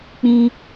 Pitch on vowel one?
high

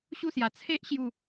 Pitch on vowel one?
falling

